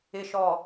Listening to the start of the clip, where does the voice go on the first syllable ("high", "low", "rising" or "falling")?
low